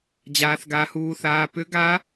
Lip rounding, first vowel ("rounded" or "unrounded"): unrounded